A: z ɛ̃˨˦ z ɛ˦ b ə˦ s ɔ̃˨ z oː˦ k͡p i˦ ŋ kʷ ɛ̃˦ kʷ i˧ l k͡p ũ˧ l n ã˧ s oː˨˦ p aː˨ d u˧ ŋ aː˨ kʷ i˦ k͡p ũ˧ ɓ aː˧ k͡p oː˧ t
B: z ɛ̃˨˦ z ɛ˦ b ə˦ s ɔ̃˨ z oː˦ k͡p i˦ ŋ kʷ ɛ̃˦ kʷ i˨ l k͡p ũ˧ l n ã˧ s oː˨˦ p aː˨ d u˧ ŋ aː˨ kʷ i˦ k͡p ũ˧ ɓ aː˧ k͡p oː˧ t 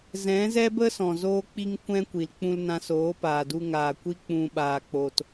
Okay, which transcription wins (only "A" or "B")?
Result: B